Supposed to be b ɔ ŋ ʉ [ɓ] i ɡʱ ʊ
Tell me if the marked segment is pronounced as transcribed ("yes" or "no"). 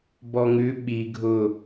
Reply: yes